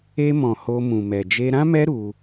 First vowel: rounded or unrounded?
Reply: unrounded